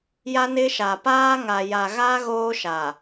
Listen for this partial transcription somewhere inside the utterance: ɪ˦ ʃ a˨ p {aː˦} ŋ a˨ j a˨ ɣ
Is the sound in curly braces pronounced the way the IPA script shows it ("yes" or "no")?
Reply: yes